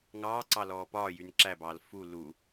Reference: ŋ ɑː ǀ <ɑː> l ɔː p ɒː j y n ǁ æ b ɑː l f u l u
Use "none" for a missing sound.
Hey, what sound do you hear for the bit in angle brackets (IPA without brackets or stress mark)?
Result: ɑ